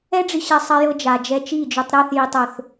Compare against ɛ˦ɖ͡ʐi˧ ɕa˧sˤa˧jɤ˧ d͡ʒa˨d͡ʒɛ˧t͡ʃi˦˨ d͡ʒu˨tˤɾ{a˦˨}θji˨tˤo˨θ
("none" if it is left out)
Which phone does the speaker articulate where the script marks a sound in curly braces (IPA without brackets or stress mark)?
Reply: a˦˨